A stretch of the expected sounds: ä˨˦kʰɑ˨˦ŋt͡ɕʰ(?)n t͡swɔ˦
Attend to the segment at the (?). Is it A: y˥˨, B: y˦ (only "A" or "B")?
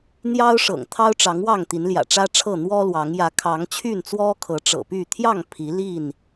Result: A